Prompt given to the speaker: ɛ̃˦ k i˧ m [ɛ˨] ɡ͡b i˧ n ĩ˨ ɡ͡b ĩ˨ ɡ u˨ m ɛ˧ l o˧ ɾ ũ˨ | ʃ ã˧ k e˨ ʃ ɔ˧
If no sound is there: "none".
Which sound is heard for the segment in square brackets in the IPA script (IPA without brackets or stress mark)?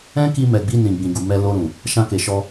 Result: ɛ˨